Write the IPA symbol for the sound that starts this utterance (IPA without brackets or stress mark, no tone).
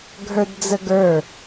ɡʱ